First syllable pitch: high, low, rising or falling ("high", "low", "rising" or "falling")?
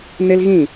high